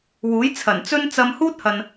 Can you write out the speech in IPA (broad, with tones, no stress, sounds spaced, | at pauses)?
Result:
w uː˨˥ j t͡sʰ ɐ˨˩ n t͡s ɵ˥ n t͡s ɐ˧ m h uː˥ t̚ h ɐ˨ n